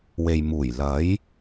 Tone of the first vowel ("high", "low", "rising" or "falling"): low